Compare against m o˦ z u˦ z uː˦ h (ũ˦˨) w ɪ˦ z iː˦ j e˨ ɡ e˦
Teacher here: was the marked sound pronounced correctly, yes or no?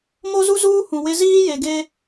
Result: no